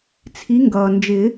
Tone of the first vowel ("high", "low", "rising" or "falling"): rising